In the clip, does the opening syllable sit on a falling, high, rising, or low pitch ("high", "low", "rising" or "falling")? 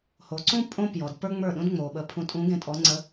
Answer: low